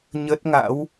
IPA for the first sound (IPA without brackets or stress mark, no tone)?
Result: ɲ